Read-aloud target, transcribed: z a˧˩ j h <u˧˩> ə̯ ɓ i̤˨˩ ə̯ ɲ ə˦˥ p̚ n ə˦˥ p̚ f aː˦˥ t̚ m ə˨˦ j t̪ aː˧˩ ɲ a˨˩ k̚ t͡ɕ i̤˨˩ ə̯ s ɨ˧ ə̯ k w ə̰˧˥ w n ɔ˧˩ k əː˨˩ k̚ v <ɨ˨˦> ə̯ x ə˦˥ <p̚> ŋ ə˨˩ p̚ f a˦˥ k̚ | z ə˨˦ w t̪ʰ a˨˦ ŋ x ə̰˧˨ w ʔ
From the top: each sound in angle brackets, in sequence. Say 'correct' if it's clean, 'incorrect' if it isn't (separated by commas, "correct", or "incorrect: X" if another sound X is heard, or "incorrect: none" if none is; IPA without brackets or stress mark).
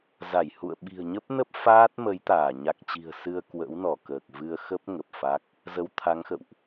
incorrect: ṵ˧˨, incorrect: ɨ˧, correct